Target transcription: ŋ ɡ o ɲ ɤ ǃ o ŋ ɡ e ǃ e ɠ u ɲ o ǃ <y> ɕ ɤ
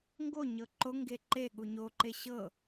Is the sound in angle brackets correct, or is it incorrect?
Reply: incorrect